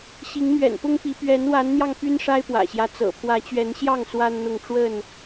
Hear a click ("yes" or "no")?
no